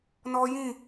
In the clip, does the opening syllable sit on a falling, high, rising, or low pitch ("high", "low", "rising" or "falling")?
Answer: high